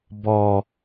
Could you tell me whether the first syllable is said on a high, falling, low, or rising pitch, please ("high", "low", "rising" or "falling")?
low